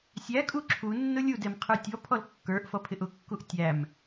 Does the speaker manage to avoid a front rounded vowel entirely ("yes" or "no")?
yes